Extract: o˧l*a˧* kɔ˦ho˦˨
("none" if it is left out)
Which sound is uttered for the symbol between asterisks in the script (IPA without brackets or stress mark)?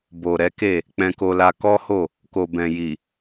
a˧